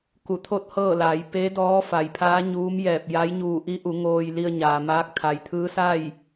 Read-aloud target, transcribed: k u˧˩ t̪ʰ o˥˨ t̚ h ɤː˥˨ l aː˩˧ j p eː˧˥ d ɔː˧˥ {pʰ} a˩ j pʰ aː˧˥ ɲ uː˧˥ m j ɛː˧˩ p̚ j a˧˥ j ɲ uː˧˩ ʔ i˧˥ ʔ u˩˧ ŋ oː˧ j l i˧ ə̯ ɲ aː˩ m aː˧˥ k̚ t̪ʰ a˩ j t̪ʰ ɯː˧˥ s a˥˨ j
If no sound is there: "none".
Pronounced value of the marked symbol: f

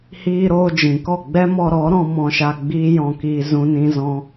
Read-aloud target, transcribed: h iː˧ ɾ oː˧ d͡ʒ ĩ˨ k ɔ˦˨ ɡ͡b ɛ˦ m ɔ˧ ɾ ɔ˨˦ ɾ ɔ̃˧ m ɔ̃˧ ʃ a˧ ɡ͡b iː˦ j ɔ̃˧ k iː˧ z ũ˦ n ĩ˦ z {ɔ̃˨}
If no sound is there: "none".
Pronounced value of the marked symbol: ɔ̃˦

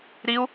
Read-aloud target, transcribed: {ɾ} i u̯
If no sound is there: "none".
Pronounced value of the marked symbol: ɾ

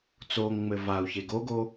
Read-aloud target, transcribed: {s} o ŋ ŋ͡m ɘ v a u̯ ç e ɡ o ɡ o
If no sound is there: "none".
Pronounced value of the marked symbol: t͡s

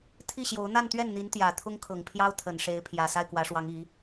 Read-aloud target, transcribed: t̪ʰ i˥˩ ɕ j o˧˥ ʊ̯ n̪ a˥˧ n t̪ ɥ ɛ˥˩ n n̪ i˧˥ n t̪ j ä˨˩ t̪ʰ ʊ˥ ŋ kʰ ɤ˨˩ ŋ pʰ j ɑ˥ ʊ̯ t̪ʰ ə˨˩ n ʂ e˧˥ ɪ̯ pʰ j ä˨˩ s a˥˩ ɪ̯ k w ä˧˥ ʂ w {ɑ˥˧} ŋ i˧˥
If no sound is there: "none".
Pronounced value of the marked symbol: ɑ˧˥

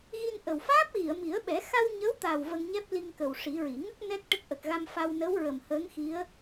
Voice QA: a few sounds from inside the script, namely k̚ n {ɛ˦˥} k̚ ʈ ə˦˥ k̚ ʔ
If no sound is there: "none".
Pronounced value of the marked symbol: ɛ˦˥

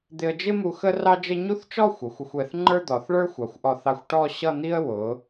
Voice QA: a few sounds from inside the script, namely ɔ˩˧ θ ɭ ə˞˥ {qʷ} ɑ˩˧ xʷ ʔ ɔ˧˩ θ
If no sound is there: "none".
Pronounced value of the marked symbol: xʷ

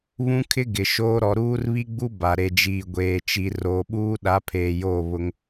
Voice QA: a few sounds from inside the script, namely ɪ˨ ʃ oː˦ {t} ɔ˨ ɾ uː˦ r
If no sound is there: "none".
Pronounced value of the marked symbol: ɾ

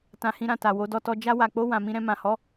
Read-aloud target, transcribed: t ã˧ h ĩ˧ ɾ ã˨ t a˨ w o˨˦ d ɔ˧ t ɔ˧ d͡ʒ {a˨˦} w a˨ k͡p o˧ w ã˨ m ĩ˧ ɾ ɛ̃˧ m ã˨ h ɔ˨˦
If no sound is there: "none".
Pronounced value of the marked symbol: a˧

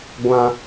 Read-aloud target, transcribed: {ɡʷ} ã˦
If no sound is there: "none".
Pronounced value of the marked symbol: ɡʷ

